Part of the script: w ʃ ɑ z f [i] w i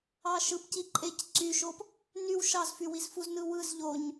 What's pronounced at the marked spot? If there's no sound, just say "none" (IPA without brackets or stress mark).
y